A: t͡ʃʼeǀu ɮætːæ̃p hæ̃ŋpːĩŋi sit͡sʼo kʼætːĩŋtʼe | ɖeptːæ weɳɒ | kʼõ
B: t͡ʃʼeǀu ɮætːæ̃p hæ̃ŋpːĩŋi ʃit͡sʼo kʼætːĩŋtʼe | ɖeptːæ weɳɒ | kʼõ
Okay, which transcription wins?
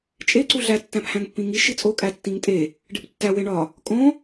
B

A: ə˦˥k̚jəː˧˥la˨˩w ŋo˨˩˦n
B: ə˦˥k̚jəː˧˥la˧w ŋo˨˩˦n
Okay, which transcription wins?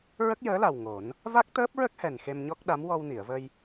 A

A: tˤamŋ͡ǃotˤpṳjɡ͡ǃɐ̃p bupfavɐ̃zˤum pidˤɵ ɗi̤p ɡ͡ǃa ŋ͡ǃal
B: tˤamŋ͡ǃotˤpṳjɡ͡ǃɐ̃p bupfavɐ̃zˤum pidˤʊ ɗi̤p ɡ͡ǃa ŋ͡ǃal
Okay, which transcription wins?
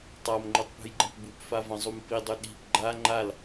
A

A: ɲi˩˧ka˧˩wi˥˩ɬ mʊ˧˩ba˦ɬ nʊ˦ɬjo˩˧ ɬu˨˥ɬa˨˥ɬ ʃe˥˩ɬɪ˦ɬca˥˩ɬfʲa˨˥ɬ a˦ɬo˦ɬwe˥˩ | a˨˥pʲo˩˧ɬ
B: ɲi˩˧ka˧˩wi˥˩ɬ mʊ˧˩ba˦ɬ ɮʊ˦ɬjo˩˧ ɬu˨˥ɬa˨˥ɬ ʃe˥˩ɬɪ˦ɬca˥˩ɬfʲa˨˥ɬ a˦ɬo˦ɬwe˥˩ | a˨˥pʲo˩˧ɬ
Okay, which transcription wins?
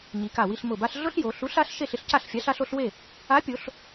B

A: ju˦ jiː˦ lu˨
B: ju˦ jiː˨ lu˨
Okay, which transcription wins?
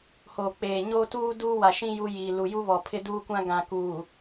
B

